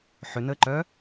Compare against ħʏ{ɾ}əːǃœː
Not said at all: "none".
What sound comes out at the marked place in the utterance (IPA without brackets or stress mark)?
n